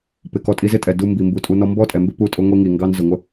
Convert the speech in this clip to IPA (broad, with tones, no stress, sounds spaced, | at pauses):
p ɪ˨ k ɔ˧ tʼ i˧ z ɪ˦ tʼ ɛ˨ d u˧ m b i˨ m b u˨ tʼ u˧ n ɔ˦ m b ɔ˦ tʼ ɛ˨ m b ɪ˦ p u˧ tʼ ʊ˧ ŋʷ i˧ ŋ i˨ ŋ ɡ ɑ˦ n z ʊ˨ ŋʷ ə˦